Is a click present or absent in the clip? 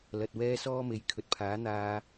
absent